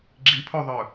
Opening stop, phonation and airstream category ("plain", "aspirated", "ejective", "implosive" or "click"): click